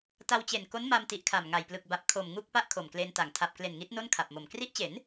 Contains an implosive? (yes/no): no